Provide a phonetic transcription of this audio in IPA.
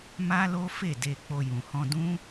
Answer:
m a˦ l o˦ f e˦˨ d e˧ k͡p o˧ j ũ˨ h ɔ̃˧ d ũ˦

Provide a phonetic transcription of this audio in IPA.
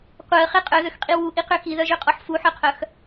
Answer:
qʷ œ ə̯ χ e qʼ œ ð ø x qʼ i w u ʔ i q ø x i ð œ ʒ ø qʼ ɔ ħ f u ħ œ qʰ œ x

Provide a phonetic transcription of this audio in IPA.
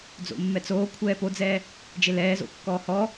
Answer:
d͡z o̰ mː ɛ t͡s oː kʷʰ ɛː p o d͡z ɛː | d͡ʒ e l ɛː z o̰ kː ɔː h ɔ

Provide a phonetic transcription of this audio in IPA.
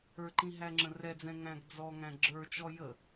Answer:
ə˞ ǃ ĩ ɦ æ ŋ͡ǁ ə̃ r ɛ d͡z ɛ̃ ŋ æ̃ ɡ d͡z ɔ ŋ æ̃ ɡ͡ǁ ə˞ t͡ʃ ɔ j ə

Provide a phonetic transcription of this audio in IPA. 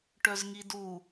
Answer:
ʈ œ z ŋ i d u

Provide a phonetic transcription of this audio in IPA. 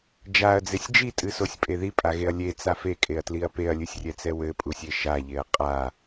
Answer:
d͡ʒ a ɐ̯ d͡z e sʲ d͡ʒ i tʼ ɨ s o sʲ pʼ e ð i pʼ a ɣ e ɐ̯ lʲ e t͡s a f e kʼ e ɐ̯ t l i ɐ̯ p e ɐ̯ lʲ ɨ sʲ rʲ ɛ t͡s ɛ w ɘ pʼ u sʲ e ʃ a ʎ e ɐ̯ qʼ a

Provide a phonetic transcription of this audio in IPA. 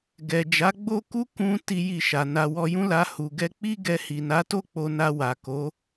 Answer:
ɡ ɛ˨ d͡ʒ a˨˦ ɡ͡b o˦ k u˦ k ũ˧ t i˦ j i˦˨ ʃ a˨ n a˧ w ɔ˧ j ũ˦ l a˧ h u˨ ɡ ɛ˧ k͡p i˦ ɡ ɛ˧ h i˨ n a˨˦ t o˦ k͡p o˧ n a˧ w a˨ k o˨˦

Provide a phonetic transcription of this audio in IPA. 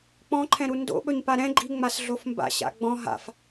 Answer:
k͡p ɔ̃ ǃʰ ɛ̃ ɾ u n d o̰ ɓ ɵ ɲ p a ɾ ɛ̃ ɡ͡ǃ i ŋ͡m a s ɮ o f m b a̰ ɕ a̰ ɡ͡b ɔ̃ ɦ a̰ f

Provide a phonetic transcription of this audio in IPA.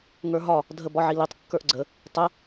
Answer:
ŋ ə˞ ɦ ɒ | dʱ ə b ɒ ʕ i l i tˤ kː ə˞ ʔ ɡ͡ǀ ə | tˤ ə

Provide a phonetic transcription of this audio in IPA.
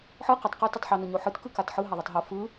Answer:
ħ ɯ q ɯ tˤ q œ t ɯ tˤ ħ o n o ɲ o ħ ɯ t k ɯ k a t ħ ɯ ɦ a ðˤ o tˤ ɦ o f ɯ

